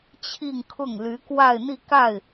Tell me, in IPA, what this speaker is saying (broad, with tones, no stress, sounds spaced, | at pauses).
t͡ɕʰ i˥˧ ŋ kʰ ʊ˥˩ ŋ l y˧˥ k w a˥˧ ɪ̯ n̪ i˥˧ k a˥˩ ɪ̯